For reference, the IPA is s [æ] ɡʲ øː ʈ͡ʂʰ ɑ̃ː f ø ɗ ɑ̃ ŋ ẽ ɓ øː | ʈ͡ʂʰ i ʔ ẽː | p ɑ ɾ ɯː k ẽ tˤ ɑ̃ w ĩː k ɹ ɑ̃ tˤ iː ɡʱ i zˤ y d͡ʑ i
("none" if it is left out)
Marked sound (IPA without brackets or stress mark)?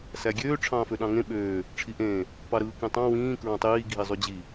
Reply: æ